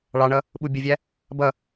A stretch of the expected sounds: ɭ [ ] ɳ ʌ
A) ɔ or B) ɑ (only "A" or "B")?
B